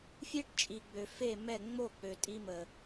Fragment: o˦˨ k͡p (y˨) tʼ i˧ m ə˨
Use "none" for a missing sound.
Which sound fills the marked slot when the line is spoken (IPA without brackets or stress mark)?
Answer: ø˨